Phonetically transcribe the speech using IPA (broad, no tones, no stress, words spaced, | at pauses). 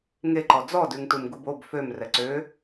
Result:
ŋeǃɔ d͡zɔdʉŋtum ɡubob føm rɛǀø